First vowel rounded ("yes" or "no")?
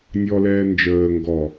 yes